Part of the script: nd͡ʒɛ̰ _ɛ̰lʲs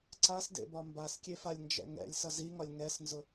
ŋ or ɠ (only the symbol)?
ŋ